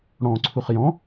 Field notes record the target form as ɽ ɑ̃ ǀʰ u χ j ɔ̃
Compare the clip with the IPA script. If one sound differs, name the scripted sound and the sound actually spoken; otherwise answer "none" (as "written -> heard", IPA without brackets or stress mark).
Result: ɑ̃ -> ɔ̃